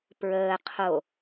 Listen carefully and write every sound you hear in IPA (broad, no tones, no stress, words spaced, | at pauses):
pɹəː qʰo